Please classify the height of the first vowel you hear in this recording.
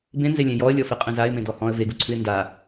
mid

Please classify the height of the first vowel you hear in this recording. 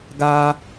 low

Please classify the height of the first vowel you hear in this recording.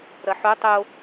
low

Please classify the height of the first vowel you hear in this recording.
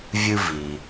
high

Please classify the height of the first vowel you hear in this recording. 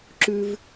high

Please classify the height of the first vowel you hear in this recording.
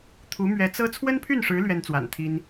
high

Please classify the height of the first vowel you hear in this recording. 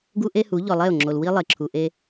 high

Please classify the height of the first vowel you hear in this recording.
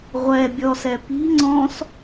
mid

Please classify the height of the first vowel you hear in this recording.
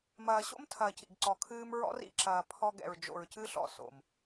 low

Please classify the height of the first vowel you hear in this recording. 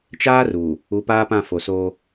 low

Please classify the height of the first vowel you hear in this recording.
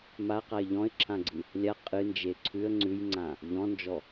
low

